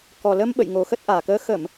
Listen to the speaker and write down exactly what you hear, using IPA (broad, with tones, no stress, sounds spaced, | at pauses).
k ɔ˨˩ l ə˧ m ɓ ə̰˧˨ j ŋ o˨˩ x ə˦˥ t̚ ʔ aː˨˩ k əː˧ x ə˧˩˨ m